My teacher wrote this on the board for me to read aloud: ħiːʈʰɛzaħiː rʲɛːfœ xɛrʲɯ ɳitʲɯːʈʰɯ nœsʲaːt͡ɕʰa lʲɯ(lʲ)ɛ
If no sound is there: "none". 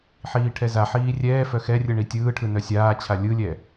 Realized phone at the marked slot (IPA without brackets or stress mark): lʲ